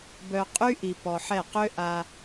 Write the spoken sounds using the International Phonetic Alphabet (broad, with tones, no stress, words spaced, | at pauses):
bœ˨qʼy˦ʔi˨ pɔ˨ħɛ˦˨ qø˦ ʔa˦